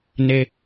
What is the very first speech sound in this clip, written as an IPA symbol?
n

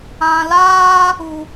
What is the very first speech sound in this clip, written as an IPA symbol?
ã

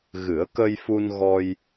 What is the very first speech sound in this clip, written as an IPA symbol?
ɣ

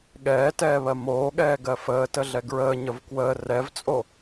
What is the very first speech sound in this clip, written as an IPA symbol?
ɠ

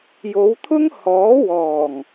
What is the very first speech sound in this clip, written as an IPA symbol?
j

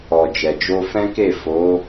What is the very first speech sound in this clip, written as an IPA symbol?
ɔ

